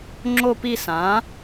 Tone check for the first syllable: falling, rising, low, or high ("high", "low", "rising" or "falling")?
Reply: falling